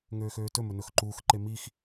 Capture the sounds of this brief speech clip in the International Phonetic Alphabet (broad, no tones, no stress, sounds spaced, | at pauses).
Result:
ŋ øː x øː t ɵ m ɵ n ɵ x ǃ uː x ǃ e m i x